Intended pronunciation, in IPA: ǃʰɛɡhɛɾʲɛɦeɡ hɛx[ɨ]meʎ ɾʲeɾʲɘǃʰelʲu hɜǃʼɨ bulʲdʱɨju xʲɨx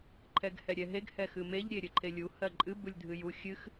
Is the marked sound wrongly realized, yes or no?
no